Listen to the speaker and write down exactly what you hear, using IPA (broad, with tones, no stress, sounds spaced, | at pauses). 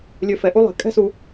lʲ ø˨ f ɛ˩ ʔ u˦ lˠ ɛ̤˩ kʼ ɛ̤˥ s u˨